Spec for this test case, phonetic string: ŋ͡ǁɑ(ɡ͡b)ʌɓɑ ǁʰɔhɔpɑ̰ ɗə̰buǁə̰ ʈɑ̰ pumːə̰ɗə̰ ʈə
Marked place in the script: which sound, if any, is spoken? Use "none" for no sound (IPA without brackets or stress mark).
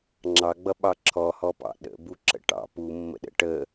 ɡ͡b